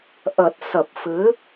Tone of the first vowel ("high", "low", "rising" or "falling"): low